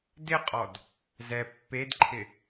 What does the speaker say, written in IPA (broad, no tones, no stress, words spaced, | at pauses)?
dɪqʼɔd | zɛ pːedǃʰɪ